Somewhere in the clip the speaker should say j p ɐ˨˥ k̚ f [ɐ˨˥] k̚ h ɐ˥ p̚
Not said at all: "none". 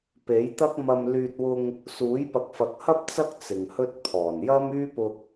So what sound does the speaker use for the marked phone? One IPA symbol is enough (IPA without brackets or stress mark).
ɐ˨˥